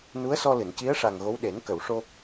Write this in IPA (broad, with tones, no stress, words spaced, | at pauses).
nu˧˥ə̯sɔ˧lɨ˨˩˨n ci˧˥ə̯ʂa˨˩ŋ ɣo˧˥w ɗe˨˩˦nkə˨˩˨wʂo˧